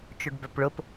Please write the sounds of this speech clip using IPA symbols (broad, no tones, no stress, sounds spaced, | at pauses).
t͡ʃ o ɖ b œ p ɭ ʊ p